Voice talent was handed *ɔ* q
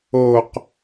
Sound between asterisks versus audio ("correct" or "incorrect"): incorrect